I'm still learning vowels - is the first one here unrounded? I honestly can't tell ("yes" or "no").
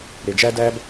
yes